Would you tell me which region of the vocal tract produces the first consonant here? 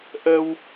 throat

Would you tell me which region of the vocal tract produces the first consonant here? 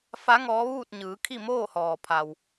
lips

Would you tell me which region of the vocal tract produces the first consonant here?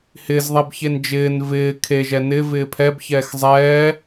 throat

